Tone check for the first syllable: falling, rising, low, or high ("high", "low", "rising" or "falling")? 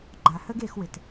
low